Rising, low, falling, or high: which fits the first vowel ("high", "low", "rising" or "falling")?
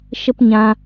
high